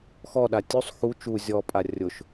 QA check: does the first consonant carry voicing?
no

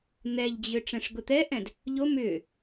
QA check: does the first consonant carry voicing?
yes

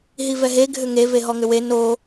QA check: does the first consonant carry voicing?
yes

